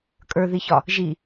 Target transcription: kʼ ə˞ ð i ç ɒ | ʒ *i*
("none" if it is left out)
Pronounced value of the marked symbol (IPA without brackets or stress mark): i